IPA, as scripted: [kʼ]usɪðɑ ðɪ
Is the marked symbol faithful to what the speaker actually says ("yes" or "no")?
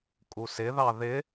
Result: yes